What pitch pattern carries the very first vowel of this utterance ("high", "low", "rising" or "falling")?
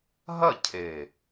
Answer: falling